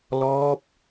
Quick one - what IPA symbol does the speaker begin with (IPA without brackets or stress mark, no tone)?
l